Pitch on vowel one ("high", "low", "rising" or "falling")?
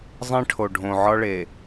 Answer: high